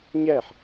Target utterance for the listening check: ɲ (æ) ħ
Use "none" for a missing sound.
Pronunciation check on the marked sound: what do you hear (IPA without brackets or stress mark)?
æ